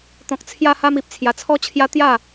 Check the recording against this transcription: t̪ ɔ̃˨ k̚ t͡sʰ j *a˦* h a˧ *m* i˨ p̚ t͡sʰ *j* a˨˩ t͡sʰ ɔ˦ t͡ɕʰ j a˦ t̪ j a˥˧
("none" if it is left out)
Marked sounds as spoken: a˧, m, j

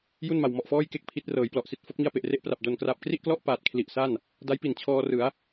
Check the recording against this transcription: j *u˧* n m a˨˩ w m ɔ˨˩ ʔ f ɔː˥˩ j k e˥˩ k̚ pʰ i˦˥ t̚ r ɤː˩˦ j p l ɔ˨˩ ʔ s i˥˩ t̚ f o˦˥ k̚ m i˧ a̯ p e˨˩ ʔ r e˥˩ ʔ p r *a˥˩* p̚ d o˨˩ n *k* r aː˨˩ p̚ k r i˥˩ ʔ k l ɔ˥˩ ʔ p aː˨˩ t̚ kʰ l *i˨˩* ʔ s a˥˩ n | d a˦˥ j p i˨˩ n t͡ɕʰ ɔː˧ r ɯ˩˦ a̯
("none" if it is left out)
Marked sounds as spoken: u˥˩, a˨˩, k, i˨˩

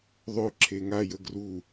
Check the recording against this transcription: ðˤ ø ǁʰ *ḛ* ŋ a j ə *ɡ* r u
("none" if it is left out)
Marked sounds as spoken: e, ɡ

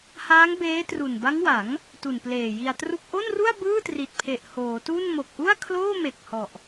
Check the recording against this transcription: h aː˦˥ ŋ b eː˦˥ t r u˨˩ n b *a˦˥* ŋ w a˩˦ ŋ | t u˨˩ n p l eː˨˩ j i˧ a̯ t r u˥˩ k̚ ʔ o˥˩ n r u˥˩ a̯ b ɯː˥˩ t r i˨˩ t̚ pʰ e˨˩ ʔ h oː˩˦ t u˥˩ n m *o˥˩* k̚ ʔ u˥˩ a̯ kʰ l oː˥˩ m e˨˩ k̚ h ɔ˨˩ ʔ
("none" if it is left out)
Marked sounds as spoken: a˦˥, o˨˩

